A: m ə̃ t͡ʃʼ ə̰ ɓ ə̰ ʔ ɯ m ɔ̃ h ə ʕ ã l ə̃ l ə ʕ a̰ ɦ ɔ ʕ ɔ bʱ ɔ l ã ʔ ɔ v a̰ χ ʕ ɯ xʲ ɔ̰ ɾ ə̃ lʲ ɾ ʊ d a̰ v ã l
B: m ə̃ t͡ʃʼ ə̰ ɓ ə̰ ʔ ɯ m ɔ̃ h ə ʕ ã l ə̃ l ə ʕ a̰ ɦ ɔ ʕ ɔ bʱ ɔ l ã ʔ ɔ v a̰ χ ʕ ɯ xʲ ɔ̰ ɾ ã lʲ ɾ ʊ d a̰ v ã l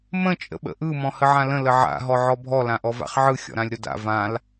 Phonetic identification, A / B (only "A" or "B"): B